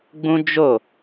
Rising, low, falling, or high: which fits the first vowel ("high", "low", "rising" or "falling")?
high